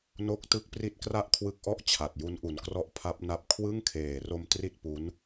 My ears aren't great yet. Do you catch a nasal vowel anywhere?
no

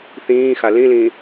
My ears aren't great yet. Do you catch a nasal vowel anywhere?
yes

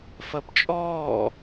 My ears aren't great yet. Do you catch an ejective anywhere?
yes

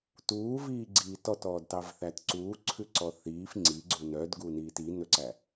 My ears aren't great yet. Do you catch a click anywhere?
yes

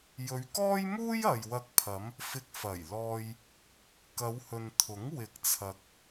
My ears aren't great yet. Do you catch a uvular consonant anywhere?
no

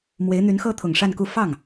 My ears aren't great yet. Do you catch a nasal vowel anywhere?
no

